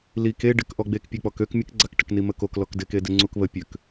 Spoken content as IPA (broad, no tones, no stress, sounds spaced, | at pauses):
l i k e ɖ ɪ k ʔ ɔ ɡ͡b e k pʲ ø k͡p ɔ k ø k mʲ ə k ɡ͡ǀ a k ʈ ə k n i m ə k o k l ɔ k d ɪ k e d ɪ ŋ͡ǀ u k β ə pʲ ø k